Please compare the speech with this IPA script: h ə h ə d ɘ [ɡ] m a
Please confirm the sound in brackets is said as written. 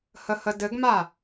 yes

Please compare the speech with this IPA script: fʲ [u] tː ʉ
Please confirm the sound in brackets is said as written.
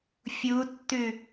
yes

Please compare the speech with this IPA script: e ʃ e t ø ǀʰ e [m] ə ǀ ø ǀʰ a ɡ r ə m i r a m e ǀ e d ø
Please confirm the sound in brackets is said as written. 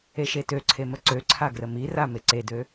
yes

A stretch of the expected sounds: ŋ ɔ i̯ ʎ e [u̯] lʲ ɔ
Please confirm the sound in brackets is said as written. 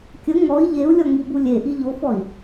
yes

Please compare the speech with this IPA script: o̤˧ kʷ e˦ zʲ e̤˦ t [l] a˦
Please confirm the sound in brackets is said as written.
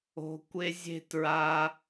no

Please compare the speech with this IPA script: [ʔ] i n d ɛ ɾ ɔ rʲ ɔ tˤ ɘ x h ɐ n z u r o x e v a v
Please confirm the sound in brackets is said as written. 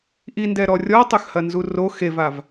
yes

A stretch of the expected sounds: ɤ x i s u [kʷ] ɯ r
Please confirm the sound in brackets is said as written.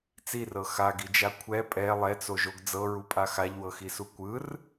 yes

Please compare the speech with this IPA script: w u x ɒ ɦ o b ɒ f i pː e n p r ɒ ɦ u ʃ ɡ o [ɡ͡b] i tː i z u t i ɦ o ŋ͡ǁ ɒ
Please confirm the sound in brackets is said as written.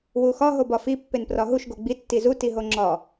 yes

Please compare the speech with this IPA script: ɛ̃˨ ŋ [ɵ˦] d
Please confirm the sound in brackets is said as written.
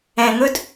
yes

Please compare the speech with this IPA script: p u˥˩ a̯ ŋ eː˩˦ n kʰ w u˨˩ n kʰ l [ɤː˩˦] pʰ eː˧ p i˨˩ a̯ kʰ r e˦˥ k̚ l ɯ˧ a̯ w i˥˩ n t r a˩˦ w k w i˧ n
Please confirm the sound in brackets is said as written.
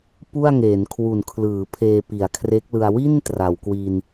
no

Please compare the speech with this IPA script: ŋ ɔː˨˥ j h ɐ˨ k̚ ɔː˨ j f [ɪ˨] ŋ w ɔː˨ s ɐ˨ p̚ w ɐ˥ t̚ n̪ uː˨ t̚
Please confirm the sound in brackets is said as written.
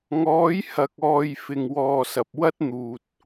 yes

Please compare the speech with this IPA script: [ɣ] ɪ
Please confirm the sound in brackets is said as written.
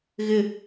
yes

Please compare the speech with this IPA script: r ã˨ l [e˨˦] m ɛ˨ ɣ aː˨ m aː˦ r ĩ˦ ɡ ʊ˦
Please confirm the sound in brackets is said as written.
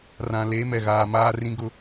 yes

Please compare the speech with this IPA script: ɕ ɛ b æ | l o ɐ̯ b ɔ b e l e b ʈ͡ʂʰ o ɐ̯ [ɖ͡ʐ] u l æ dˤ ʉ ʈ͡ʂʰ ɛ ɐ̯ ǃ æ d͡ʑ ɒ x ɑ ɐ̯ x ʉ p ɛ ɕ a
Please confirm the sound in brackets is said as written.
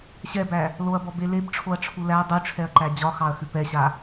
no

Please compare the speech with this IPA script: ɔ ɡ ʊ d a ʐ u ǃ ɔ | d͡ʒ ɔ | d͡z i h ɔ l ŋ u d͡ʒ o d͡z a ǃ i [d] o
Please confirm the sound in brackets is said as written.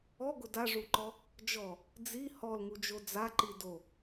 yes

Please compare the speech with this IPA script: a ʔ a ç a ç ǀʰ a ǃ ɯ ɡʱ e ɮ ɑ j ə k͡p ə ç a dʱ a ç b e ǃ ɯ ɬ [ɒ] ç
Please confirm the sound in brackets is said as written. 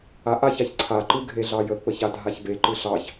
no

